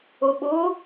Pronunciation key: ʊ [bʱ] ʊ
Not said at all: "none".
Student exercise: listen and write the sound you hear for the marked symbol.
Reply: ɓ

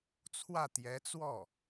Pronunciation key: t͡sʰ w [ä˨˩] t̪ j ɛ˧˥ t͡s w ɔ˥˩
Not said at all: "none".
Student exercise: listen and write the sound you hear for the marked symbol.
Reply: ä˥˩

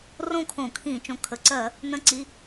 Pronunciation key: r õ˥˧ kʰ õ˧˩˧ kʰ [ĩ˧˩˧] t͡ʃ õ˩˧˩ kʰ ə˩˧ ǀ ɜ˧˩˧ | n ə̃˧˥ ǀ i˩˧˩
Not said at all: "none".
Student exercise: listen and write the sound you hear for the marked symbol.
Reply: ĩ˧˩˧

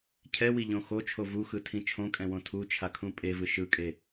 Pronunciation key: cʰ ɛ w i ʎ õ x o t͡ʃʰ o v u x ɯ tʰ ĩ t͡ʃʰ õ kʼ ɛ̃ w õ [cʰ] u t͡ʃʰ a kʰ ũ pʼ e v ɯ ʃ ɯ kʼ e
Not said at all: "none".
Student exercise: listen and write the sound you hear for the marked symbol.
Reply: tʰ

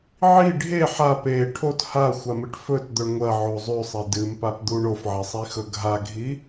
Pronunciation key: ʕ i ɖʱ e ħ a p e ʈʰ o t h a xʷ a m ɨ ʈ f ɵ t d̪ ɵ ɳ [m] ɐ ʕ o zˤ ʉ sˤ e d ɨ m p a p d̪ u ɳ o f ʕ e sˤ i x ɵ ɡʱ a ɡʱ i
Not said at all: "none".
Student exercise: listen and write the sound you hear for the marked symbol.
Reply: ŋʷ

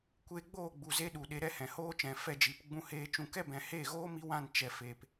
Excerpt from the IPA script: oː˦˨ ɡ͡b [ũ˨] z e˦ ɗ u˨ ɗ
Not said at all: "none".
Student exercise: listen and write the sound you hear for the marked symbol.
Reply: u˨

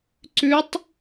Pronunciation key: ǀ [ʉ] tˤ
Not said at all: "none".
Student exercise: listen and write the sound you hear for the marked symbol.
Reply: ʉ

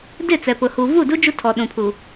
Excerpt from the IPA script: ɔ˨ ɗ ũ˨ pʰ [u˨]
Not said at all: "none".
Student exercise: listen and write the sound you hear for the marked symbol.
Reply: u˨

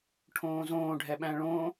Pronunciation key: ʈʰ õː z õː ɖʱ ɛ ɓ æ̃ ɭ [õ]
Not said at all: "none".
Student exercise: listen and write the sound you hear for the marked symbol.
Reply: õ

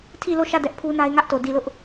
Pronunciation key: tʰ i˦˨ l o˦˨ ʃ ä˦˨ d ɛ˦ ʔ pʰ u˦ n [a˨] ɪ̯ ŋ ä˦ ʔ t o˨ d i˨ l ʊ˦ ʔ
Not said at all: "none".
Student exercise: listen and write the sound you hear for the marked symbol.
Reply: a˦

